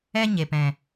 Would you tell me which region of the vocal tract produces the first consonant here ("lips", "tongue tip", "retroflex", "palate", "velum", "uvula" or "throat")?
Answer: palate